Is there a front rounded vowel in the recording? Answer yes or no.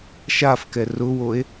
no